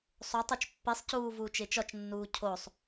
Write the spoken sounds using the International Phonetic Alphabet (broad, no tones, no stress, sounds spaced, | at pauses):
sˤ o tˤ o t͡ʃ pː i sˤ c uː v uː t͡ʃ e t͡ʃ ɒ t͡ʃ nː uː cʰ o sˤ